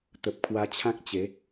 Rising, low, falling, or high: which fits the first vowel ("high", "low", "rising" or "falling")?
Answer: low